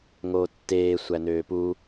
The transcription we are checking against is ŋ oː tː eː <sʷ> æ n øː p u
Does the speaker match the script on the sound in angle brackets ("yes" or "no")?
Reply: yes